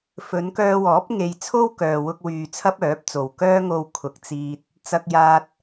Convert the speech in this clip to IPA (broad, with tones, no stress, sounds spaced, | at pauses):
f ɵ˨˧ n k œː˧ w ɔː˨˥ p̚ ŋ e˧ j t͡sʰ o˥ w k œː˨ w ʊ˧ k̚ w yː˨ t͡sʰ ɐ˥ p̚ œː˨˥ p̚ t͡s o˨ w k œː˥ ŋ o˧ w kʰ ʊ˨ k̚ t͡s iː˧ t̚ | t͡s ɐ˧ k̚ j aː˧ t̚